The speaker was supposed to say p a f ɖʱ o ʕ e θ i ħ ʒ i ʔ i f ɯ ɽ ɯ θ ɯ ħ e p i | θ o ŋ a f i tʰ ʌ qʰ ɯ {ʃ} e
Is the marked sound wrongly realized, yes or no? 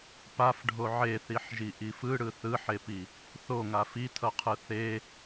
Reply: yes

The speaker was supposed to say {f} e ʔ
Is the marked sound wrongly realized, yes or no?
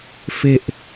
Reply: no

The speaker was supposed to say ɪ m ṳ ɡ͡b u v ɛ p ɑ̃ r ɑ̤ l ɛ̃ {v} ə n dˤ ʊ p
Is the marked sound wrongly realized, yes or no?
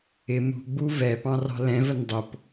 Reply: no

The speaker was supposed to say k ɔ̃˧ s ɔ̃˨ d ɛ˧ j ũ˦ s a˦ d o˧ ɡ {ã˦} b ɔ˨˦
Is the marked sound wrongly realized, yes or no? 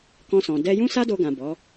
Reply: yes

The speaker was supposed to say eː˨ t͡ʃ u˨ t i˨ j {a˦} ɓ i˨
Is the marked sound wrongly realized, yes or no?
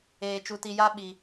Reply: no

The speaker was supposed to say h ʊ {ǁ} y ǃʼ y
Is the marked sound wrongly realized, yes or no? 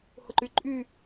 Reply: yes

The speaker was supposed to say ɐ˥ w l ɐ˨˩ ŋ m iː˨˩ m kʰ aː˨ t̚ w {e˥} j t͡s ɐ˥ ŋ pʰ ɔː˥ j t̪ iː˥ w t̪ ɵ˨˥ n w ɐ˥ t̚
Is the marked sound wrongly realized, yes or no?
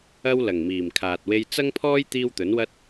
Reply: no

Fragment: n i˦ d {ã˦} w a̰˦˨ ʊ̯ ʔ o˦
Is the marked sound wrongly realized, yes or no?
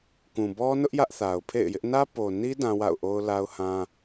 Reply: no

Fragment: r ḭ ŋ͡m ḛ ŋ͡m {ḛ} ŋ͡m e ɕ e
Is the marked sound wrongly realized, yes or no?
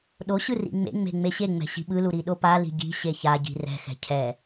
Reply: yes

